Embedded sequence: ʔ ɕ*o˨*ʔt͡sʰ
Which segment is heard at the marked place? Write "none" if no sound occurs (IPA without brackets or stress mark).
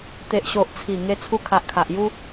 o˨